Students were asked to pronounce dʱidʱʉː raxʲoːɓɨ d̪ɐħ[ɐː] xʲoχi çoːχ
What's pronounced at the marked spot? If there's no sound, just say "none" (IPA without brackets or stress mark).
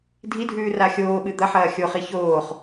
ɐː